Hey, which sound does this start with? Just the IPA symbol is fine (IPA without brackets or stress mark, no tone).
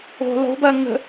o̤